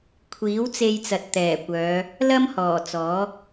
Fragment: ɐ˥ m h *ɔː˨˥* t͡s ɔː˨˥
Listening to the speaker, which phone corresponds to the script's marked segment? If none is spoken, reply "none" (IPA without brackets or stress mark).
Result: ɔː˨˩